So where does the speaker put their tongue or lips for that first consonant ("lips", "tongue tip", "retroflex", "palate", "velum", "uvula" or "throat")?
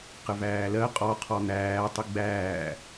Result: uvula